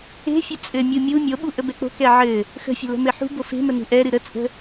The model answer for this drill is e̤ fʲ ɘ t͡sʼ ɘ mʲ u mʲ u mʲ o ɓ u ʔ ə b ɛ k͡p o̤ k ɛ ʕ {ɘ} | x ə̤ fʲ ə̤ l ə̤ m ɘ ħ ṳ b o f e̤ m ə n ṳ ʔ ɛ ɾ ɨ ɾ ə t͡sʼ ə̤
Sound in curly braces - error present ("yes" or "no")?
no